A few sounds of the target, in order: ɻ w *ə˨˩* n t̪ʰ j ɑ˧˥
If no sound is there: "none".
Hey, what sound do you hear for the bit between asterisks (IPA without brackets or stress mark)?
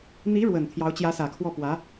ə˨˩